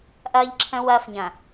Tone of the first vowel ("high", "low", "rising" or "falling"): high